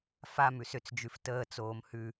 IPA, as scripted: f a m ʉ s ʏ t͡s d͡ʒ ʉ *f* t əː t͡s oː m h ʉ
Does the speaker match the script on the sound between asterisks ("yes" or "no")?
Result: yes